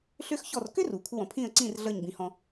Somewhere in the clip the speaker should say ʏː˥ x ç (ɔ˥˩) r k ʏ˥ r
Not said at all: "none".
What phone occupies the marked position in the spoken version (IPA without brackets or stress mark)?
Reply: ɔ˥˩